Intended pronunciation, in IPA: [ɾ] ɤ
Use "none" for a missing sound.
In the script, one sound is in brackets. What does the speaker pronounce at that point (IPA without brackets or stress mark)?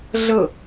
ɮ